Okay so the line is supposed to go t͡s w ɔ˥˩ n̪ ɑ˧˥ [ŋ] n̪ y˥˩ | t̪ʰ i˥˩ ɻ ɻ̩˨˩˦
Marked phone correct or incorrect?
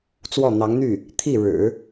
correct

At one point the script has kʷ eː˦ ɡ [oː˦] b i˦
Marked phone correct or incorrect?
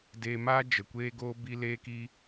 correct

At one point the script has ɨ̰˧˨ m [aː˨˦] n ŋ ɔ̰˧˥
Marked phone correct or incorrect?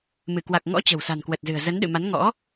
incorrect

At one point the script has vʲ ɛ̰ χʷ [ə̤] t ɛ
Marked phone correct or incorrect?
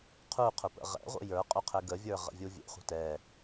correct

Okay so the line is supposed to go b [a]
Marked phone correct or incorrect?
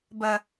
incorrect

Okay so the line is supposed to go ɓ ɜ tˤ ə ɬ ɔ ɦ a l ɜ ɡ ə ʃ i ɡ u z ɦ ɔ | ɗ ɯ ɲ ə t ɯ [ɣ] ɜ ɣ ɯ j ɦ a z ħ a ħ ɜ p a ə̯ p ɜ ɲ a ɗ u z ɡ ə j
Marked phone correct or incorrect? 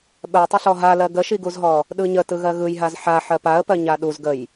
correct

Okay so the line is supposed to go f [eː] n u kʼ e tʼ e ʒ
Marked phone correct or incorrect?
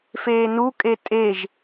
correct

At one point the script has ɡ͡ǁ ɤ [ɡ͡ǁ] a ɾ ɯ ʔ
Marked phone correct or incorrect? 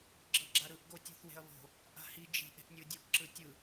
correct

